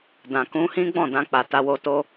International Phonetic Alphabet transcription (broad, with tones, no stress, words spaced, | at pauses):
dã˨kũ˧hĩ˦ ɡ͡bɔ̃˦˨dã˧k͡pa˨ ta˧wo˧to˦